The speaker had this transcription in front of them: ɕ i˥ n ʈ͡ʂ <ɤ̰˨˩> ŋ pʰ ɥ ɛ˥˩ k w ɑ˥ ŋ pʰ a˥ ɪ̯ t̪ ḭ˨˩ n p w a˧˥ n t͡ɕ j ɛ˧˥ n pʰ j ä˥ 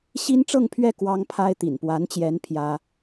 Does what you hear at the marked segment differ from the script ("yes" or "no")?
yes